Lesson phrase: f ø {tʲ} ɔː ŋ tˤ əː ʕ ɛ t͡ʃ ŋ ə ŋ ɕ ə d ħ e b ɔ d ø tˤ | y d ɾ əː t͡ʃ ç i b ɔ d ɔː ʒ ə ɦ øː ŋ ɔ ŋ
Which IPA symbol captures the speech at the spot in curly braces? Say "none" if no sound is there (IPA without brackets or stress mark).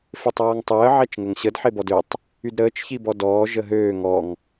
tˤ